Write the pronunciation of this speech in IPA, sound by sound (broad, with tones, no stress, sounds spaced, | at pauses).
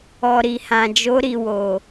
ɔ˨ ɾ i˨ h ã˨ d͡ʒ o˨˦ ɾ i˧ w o˨